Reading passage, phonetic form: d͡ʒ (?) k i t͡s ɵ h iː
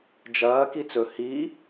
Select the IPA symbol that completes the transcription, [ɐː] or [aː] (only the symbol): ɐː